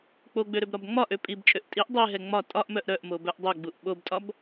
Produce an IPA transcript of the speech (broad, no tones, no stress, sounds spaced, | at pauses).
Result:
k͡p o ɡ͡b ø ɾ ø b ɾ ɒ b ŋ͡m ɒ ʔ ø pʼ i b t͡ʃʼ ø ʔ tʼ i ʔ dˤ e ɦ ɛ ŋ͡m ɒ tʼ ɒ ʔ m œ ʔ ɾ œ ʔ m o b œ ʔ dˤ ø ɡ͡b u ʔ ɓ o b tʼ ɒ b